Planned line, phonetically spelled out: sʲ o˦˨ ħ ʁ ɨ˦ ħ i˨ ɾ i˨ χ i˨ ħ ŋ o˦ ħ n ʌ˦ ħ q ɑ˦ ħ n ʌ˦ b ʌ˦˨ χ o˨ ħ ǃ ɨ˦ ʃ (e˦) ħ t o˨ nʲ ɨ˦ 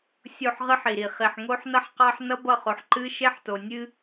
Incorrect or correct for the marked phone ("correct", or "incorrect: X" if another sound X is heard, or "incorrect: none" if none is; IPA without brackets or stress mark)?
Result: correct